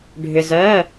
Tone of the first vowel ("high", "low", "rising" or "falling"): low